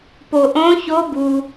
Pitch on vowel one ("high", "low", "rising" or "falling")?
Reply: low